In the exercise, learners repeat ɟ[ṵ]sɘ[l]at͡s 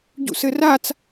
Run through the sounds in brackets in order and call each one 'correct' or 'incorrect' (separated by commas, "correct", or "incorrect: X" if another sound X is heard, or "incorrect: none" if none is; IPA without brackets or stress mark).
correct, incorrect: r